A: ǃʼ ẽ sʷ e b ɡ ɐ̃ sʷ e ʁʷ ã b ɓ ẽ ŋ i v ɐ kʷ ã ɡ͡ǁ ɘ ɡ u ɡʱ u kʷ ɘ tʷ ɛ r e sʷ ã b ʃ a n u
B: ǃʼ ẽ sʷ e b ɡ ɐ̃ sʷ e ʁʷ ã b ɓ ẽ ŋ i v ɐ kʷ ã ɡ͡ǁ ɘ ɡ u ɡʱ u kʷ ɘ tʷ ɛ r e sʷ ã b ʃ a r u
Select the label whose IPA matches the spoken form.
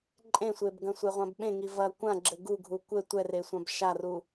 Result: B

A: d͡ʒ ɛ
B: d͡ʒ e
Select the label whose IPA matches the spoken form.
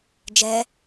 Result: A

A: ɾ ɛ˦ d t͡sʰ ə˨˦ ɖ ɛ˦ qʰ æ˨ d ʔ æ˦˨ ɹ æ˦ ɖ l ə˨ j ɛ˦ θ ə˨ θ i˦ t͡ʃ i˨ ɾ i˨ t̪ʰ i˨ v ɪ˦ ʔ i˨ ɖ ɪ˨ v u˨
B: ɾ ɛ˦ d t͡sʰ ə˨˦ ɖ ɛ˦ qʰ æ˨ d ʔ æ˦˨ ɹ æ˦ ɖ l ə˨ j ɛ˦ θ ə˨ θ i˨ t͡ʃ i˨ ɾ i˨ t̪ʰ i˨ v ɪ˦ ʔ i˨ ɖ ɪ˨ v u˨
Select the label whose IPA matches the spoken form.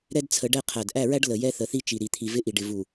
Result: A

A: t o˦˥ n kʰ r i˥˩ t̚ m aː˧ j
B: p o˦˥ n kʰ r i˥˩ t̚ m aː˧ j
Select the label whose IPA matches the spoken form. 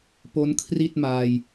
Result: B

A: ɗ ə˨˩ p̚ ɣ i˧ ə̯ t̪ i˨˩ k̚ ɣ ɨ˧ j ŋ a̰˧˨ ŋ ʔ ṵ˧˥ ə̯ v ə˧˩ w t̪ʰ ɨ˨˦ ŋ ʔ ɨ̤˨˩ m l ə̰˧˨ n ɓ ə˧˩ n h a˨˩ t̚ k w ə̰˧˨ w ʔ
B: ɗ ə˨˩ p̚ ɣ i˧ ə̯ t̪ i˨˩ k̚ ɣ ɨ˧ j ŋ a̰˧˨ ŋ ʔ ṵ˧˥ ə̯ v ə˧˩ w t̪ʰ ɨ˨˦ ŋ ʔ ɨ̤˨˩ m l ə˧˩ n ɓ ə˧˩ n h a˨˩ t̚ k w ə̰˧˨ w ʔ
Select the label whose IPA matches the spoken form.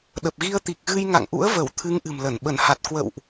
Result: B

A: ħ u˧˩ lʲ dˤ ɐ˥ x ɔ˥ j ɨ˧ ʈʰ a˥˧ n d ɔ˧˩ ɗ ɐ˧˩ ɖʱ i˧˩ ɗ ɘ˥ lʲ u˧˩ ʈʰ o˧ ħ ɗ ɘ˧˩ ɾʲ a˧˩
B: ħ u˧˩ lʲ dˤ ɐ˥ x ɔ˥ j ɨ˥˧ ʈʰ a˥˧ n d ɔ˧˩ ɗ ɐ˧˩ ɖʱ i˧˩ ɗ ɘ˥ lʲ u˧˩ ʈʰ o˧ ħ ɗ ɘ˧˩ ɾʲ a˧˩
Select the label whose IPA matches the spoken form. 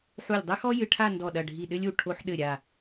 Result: A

